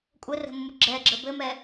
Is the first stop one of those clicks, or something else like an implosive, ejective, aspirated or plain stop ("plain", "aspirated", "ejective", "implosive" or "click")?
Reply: ejective